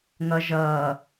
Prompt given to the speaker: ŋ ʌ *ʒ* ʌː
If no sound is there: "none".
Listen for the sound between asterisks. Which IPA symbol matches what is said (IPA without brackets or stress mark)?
ʒ